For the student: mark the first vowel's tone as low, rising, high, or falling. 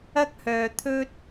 high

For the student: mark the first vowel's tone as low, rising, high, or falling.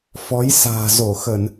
rising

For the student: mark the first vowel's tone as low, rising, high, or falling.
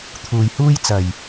low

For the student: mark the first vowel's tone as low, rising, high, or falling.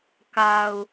low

